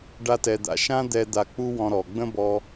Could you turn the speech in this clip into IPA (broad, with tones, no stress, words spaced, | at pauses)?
ɖa˥tɛ˧d̪a̰˧ ʃã˥d̪ɛ˧ d̪a˧k͡pu˥wɔ̃˧ ɾɔ˩ɡ͡bə̃˥bɔ˧